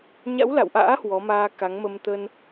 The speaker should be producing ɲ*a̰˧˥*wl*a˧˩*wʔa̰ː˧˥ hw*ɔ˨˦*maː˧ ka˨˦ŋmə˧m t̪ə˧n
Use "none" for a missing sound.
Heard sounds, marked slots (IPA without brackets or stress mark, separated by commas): a̰˧˥, a̰˧˨, ɔ˨˦